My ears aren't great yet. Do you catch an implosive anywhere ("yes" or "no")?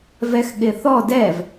yes